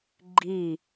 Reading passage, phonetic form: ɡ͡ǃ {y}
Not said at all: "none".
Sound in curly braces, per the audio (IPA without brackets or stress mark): i